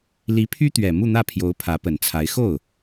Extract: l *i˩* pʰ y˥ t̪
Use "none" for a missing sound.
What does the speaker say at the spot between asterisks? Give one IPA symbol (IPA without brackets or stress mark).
i˧˥